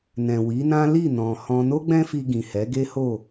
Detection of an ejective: absent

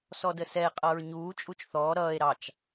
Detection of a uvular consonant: present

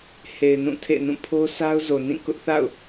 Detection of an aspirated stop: present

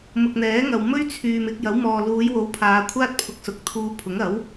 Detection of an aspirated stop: present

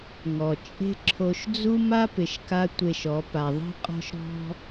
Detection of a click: present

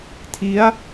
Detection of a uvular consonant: absent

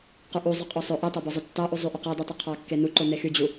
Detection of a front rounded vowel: present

